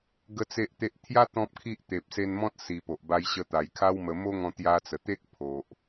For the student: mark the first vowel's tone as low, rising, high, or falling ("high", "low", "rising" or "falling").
high